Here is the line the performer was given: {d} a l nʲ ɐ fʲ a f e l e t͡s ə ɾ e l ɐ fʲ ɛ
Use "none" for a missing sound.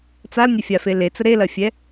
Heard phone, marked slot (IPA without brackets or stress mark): t͡s